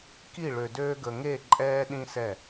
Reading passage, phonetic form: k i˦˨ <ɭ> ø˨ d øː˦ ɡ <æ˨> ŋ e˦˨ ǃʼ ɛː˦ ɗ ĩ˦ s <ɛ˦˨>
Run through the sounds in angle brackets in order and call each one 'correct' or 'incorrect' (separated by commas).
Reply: correct, incorrect, correct